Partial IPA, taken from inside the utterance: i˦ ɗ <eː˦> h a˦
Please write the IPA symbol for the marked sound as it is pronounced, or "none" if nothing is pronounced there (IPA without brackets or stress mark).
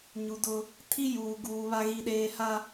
eː˦